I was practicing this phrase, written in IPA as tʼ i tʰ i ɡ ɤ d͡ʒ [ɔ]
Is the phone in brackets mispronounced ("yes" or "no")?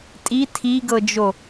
yes